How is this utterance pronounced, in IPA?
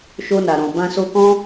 ʃ o˧ n a˨ ɾ ɔ̃˨ b ã˧ s o˧ k ɔ̃˦

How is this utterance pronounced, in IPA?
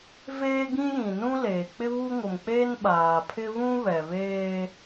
v eː˦ ɡ ĩ˦ j ĩ˨ n ũ˦ l eː˨ k͡p ɪ˦ β u˦ ŋ ʊ˨ m k͡p e˦ n ɓ aː˨ pʰ ɪ˦ β ũ˦ β ɛ˨ β eː˦

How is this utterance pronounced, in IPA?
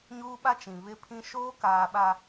ɲ uː˦ ɓ a˦ t͡ʃ ĩ˨ β ɪ˦ pʰ ĩ˦ ʃ oː˦ k aː˨ ɓ a˨

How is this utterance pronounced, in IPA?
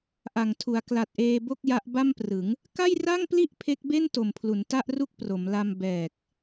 ʔ a˨˩ ŋ tʰ u˩˦ a̯ k l a˨˩ t̚ ʔ eː˧ b o˥˩ k̚ j a˦˥ ʔ b a˥˩ m p r ɯ˩˦ ŋ | k a˥˩ j r a˥˩ ŋ p l i˥˩ ʔ pʰ e˦˥ k̚ b e˥˩ n t o˨˩ m pʰ l u˩˦ n t a˥˩ ʔ r u˥˩ k̚ p r o˩˦ m l a˧ m b ɛː˨˩ k̚

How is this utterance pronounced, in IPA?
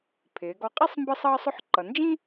pʰ ɪː˩˧ ɡ ɔ˧ qʼ i˥ sˤ m b ə˥ sˤ ʌː˥ sˤ ʊ˥ ħ ǃ ʌ˩˧ n d͡ʒ ĩ˥

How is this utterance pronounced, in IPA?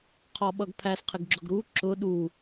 qʰ ɔ ɓ ʌ ɡ pʰ æ s qʰ ɪ ɡ ɡ͡ǁ ʊ ɡ ɾ u ǁ ʊ ɗ u

